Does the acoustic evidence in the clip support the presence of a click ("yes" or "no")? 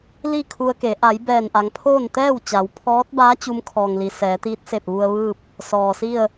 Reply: no